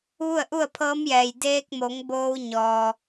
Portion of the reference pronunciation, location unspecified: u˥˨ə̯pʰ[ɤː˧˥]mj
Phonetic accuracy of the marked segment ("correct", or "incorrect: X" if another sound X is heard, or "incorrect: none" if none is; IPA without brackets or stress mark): correct